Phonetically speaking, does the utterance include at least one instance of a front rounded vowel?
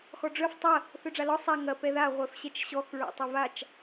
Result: yes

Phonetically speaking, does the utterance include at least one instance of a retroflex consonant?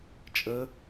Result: no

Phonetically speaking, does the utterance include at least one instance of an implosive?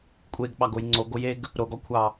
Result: yes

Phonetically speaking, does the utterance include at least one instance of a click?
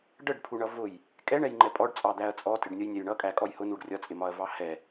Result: yes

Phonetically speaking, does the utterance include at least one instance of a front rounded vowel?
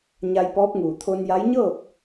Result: no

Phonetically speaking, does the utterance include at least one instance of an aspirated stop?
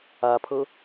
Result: yes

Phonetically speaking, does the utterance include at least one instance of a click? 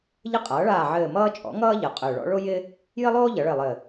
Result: no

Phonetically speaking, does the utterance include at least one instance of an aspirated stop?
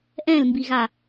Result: no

